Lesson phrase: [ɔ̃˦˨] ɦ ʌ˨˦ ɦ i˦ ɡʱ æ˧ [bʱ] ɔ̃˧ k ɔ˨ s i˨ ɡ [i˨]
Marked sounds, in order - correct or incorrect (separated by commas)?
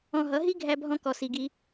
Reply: incorrect, correct, incorrect